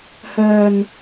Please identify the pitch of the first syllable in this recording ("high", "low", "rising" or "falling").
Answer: low